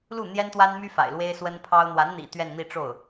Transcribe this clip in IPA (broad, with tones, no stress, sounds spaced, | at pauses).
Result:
l u˥˩ n̪ j ɛ˥ n t̪ w a˥ n m y˥ f a̰˨˩ ɪ̯ l w e˥ ɪ̯ s w ə˥ n pʰ ɑ˥ ʊ̯ n̪ w a˧˥ n n̪ ḭ˨˩ t̪ ɥ ɛ˥˧ n n̪ i˥˧ ʈ͡ʂ o˥˩ ʊ̯